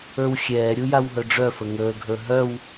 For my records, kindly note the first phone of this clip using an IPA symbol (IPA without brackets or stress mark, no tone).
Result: ə˞